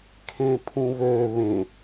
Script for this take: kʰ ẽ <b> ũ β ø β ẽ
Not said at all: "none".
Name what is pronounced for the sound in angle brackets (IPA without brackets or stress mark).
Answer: pʰ